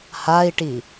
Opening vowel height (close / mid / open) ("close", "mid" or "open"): open